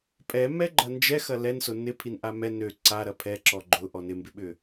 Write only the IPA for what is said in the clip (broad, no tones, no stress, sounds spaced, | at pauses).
pʼ ɛ m ɛ ɡ͡ǃ ɐ n d͡ʒ ɛ x ɐ l ɛ n s ʊ n ɪ pʰ i n ʔ a m ɛ n ø ǀ a ɾ ɐ pʰ ɛ ǁ ɔ ɡ͡ǃ ʊ ʔ ɔ n ɪ m b ɪ ɓ ʏ